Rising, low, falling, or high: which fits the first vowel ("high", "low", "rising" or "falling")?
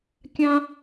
high